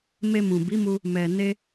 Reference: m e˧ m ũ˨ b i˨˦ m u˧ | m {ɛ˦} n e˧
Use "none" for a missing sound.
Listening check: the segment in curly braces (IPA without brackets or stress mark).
ɛ˨